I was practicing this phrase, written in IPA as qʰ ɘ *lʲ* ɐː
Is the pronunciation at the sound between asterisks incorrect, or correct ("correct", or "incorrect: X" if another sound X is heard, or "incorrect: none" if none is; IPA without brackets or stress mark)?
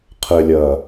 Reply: correct